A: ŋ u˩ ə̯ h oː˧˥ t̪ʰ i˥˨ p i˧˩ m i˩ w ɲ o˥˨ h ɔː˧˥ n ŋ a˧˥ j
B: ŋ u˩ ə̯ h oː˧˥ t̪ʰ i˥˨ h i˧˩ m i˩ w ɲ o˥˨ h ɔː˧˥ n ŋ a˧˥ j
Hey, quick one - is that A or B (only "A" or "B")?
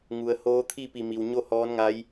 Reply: A